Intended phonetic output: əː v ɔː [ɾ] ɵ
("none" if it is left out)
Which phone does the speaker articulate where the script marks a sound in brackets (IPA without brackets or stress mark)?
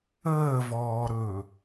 ɾ